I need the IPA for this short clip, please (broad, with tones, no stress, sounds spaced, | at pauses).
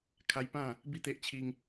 kʰ a˦ j p ã˥˧ | b i˥˧ t̪ e˦ ʔ t͡ɕʰ i˦ ŋ